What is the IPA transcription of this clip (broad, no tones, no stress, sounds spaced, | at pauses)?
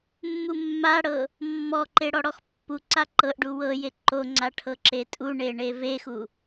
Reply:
mː u mː a ɽ ɤ | mː ɔ ǃ e ɽ ɔ ɽ ɔ x pː u ǀ a ǃ ɤ ʔ ɖ u w ɤ j e ǃ o ŋ͡ǀ a ʈʰ ɤ ǁ e tʼ u ɳ e ɳ e v e x u